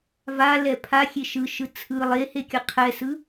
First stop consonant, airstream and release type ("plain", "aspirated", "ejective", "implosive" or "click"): aspirated